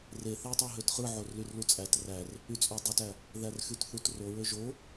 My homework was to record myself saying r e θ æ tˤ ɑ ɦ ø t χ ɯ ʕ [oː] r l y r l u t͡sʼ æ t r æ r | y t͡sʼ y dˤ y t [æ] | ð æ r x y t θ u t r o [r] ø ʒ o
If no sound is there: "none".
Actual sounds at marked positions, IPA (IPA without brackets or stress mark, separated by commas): o, æ, ɹ